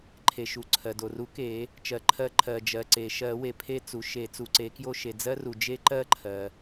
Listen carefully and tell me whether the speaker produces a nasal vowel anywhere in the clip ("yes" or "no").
no